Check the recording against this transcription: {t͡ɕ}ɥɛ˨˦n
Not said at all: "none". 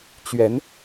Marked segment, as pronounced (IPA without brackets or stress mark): t͡ɕ